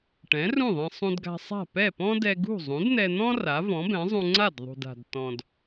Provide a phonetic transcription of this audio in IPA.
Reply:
ʈ ɛ̃˩˥ r ũ˥˩ ðˤ ɛ̃˧ sˤ ũ˧ d ɡ a̤˧ sˤ a̤˥˩ p ɛ˥˩ p ɔ̃˥ d ɛ˧ ɡ ṳ˥˩ zˤ ũ˩˥ d n̪ ɛ˧ n̪ ɔ̃˥ r a˩˥ v ɔ̃˩˥ b ɛ̃˩˥ zˤ ũ˧ ŋ͡ǀ a˥˩ d ðˤ ṳ˩ d a̤˩ d t ɔ̃˩ d

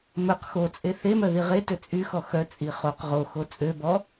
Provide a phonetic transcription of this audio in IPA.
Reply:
m ɵ q x o t͡sʼ e θ e m œ ð i ʁ e t ø t͡sʼ y x ɔ x œ t͡sʼ i χ o q ʁ o x o t͡sʼ ø b ɔ

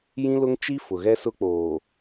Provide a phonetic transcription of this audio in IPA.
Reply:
j ĩ˦ l ʊ˦ ŋ t͡ʃ i˦ f ʊ˨ ɣ ɛ˦ s ʊ˦ k͡p oː˨

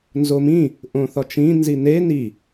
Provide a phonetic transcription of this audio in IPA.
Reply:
n z o m ĩ | ʔ õ θ ɒ t͡ʃ ĩ n z i n e n i

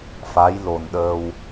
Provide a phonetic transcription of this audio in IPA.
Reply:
f a˧˥ j l o˨˩ n ɗ əː˧ w

